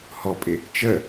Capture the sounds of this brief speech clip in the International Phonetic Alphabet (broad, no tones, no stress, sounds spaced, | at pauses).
h ɔ pʼ ɪ | t͡ʃ ə